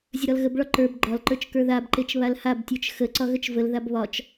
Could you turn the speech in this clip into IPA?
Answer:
zʲ ə ɾ ɒ l ɣ ə b ɭ ɒ ǃ ə˞ b ɡ͡ǃ ɒ l ǃ ə˞ t͡ʃ k ə˞ ð a b ǃ e t͡ʃ β a l h a b tʲ ə˞ t͡ʃ x ə ǀ ɒ ɣ ə t͡ʃ v ə l ð a b β ɒ t͡ʃ

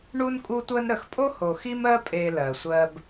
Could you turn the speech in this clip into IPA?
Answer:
ɳ u˦ n kʼ u˦ tʷ ɜ˦ n ɾ ə˨ x pʼ o˦ h o˨ x i˦ m ɜ˦ pʼ e˨ l ɜ˨ sʷ ɜ˦ b

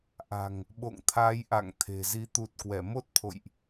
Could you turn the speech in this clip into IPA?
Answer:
ʔ a̤˨˩ ŋ | ɓ o̰˧˨ ŋ t̪ʰ aː˨˦ j ʔ a̰˧˨ ŋ t̪ʰ e̤˨˩ z i˨˦ t̪ u˨˩ t̚ k w ɛ˧˩ m o˦˥ t̚ t̪ʰ o̰˧˨ j ʔ

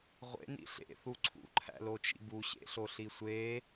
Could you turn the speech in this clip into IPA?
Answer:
ʁʷ ḛ n ḭ ɬ ḛ θ u ǀʰ ṵ ǃʰ æ̰ l o t͡ʃ ḭ b u ɕ ḛ ɬ o ɬ i sʷ e

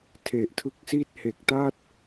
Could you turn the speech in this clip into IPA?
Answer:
tʰ e˨˩ ʔ tʰ ɯ˦˥ k̚ s i˥˩ t̚ h e˨˩ k̚ t a˥˩ t̚

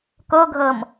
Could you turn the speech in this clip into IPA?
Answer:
k o ɡʱ ɤ m

